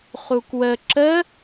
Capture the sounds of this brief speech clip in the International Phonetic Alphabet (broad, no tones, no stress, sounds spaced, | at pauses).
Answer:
χ u k w ə ǁ ə